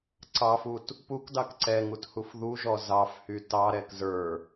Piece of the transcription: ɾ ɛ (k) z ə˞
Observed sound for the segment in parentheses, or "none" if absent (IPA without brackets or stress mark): k